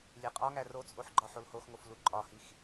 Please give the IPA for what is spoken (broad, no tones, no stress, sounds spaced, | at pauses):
lʲ e qʼ ɒ ŋ æ r o t͡sʼ o ħ ɡ͡ǃ ɒ ħ o l h o x ŋ o f l u ǃʼ ɒ h i x